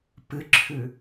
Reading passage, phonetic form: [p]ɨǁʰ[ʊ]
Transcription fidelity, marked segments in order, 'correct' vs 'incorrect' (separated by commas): correct, incorrect